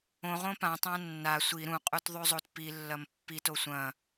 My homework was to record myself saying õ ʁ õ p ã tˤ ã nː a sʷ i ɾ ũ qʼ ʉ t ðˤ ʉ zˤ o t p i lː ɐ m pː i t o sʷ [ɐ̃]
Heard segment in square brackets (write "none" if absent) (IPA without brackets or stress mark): ɐ̃